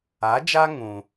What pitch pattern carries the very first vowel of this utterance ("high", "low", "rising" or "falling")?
rising